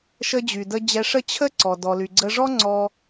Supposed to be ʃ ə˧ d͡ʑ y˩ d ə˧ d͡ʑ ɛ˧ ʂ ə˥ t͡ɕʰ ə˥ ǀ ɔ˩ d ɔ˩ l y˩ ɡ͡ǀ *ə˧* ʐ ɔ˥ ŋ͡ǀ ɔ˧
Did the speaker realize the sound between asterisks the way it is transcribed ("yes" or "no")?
yes